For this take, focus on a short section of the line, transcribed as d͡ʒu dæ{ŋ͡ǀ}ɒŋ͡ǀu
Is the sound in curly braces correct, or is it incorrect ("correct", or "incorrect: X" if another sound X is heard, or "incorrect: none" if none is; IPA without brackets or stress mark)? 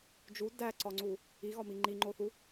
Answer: incorrect: ǀ